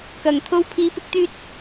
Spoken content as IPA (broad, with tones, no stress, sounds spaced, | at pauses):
k ɐ˨˩ ŋ t̪ʰ o˧ w pʰ iː˧ p ɪ˥ k̚ t̪ yː˥ t̚